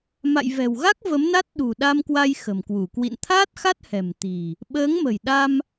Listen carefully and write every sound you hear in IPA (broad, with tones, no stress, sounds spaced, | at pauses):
m a̰˧˨ j v ɛ̤˨˩ w ɣ a˦˥ k̚ v ə˨˦ m n a˦˥ t̚ ɗ ṳ˨˩ ɗ a˧ m k w a˧ j x ə̤˨˩ m k w u˧˩ k w ḭ˧˨ n t̪ʰ aː˦˥ t̚ x a˦˥ t̚ h ɛ̤˨˩ m t̪ i̤˨˩ | ɓ əː˨˦ ŋ m ə̤˨˩ j ɗ a˧ m